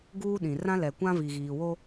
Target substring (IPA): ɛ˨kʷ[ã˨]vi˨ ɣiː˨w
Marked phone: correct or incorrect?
incorrect